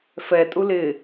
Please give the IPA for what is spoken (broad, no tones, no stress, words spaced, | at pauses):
fɛ tʼulɪ